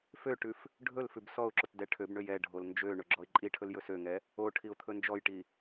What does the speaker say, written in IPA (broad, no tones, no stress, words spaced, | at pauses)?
føʈʉf | ɖʱɵl fʉbsɔʊ̯ǁot dɛʈʰøbɳøj ɛɖʱol nd͡ʒø ɳɵɡ͡ǁɔɪ̯ǃʼiʈʰɵl jɵsøŋɛ | o ʈʰiʊ̯t̪ʰɵnd͡ʒɔjʈi